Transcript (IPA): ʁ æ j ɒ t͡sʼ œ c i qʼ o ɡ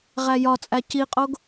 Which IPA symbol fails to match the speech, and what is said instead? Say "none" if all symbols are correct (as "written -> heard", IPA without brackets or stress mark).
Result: œ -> æ